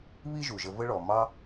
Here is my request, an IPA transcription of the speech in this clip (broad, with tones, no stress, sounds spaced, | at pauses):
β i˥ ʒ u˩ ʒ ə˧ v ə˥ ɭ ɔ˩ m ɑ˥